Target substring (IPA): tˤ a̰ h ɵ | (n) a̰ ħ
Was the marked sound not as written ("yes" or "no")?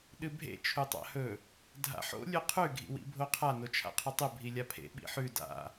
yes